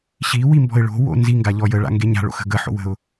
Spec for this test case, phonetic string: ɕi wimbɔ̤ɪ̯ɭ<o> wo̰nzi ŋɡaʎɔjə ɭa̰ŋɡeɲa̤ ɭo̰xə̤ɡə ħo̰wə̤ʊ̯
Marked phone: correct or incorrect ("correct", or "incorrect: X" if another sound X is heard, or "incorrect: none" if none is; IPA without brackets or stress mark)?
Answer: incorrect: o̤